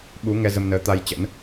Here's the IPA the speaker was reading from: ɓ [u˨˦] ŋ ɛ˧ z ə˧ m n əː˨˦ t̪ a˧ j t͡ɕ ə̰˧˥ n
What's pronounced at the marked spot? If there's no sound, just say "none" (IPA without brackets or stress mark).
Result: u˨˦